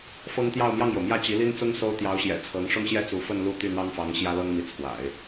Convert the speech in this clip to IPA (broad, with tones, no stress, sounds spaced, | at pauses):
f ɤ˥ ŋ t̪ j ɑ˥˧ ʊ̯ m j ɑ˥˩ ŋ j o˩ ʊ̯ m j ä˥˩ t͡ɕ i˧˥ l i˥ n t͡s ʊ˥ ŋ s o˥ ʊ̯ t̪ j ɑ˧˥ ʊ̯ ɕ j ɛ̰˨˩ t͡sʰ ɤ˧˥ ŋ ʂ ʊ˥˧ ŋ ɕ j ɛ˥˩ t͡s u˧˥ f ə˥˧ n l u˥˧ t̪ y˥˩ n̪ ɑ˥ ŋ f ɑ˧˥ ŋ ɕ j ä˥ l ɤ˥ ŋ m i˧˥ t͡sʰ w a̰˨˩˦ ɪ̯